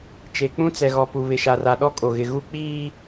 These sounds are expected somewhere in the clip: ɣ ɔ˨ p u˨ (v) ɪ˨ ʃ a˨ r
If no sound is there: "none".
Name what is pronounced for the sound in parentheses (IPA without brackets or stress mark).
β